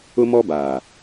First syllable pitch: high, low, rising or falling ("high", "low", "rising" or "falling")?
high